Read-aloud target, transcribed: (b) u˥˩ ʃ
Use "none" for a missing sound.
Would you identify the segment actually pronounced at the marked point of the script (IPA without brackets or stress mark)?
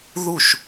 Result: ð